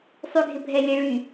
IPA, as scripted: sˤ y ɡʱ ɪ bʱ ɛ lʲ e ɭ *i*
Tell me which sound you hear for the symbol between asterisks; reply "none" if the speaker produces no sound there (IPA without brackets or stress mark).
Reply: y